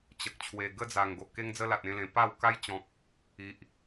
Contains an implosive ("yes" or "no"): no